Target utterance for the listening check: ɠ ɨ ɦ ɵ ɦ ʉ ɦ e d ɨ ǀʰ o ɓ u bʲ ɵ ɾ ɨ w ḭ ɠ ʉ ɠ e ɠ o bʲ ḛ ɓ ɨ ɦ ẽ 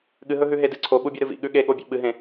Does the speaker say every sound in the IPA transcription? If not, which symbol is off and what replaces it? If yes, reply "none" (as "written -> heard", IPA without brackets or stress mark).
w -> v